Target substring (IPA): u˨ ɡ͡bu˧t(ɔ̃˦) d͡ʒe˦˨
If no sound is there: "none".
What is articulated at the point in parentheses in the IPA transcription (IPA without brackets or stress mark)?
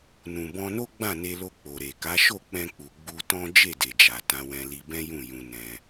ɔ̃˦